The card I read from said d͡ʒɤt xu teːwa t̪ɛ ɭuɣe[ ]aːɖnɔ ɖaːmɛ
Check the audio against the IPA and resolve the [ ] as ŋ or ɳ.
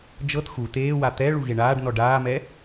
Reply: ɳ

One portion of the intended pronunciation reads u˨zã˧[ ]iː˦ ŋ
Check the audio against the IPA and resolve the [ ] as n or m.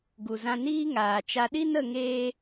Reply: n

